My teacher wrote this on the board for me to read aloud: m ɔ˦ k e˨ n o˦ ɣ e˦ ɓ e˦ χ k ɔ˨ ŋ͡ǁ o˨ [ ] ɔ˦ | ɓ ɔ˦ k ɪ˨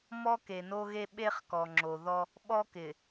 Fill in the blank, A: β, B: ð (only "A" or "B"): B